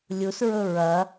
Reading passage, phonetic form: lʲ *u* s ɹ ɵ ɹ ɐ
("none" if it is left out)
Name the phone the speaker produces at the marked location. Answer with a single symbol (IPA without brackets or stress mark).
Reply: u